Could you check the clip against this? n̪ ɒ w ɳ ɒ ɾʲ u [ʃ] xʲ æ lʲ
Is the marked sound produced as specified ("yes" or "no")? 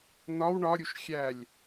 yes